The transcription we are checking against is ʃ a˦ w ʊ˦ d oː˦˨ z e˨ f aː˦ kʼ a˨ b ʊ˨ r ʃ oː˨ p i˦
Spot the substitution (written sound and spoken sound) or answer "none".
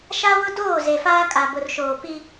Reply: none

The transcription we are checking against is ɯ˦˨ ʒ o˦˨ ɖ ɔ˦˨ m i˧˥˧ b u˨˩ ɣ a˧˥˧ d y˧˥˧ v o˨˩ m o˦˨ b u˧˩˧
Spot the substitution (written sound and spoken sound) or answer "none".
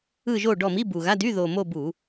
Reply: v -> ð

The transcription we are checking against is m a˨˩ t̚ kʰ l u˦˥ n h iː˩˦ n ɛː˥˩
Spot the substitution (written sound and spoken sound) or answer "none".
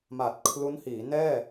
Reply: none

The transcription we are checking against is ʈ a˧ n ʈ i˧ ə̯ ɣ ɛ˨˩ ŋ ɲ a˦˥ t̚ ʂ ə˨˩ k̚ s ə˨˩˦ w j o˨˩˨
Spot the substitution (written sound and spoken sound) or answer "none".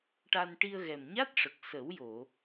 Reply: ŋ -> m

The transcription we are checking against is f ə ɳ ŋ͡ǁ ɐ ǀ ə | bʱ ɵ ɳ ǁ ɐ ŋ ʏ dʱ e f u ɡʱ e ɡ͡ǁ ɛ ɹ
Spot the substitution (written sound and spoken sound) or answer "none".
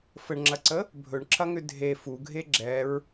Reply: none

